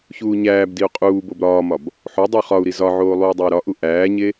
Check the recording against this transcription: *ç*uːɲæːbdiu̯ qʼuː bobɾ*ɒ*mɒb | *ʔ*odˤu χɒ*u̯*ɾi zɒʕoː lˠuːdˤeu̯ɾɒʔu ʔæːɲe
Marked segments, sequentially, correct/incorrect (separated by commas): correct, incorrect, incorrect, correct